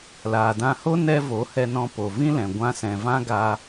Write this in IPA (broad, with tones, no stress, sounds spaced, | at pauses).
l aː˨ d ã˧ h o˦ n ɛ˧ v o˨˦ h ɛ˧ n ɔ̃˧ p o˨ v ĩ˦ l ɛ̃˨ ɡʷ ã˧ s ɛ̃˨ v ã˦ ɡ a˧